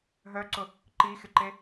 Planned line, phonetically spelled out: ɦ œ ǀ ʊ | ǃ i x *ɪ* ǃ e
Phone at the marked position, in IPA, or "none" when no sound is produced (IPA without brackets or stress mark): ɪ